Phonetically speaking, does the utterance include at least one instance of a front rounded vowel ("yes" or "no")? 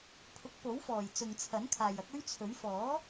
no